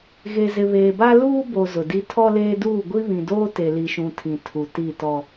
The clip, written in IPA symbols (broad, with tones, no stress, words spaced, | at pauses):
ɣe˨zɪ˨βeː˨ba˦ luː˦bo˨ zʊ˨di˦ tʰɔ˦leː˦duː˦˨ ɡʷi˦βĩ˨doː˦ te˨li˨ʃũ˨ tʰĩ˨ tʰu˨ti˦˨tɔ˦